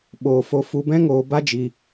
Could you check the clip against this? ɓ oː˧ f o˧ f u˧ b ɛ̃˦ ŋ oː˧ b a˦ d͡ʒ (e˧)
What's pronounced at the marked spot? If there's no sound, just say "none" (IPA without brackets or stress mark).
i˧